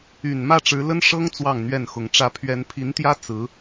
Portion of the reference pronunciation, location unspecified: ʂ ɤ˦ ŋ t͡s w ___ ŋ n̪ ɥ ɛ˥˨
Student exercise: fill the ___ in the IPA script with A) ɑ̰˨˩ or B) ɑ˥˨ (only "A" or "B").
B